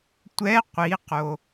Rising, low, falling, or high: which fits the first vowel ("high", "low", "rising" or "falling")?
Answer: rising